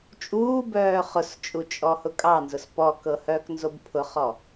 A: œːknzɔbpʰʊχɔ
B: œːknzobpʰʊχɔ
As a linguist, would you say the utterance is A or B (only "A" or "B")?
B